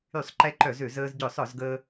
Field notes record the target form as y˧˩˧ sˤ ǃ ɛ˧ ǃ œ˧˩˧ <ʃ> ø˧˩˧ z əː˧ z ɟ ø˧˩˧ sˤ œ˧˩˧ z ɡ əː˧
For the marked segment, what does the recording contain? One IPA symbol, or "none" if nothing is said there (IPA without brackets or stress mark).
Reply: z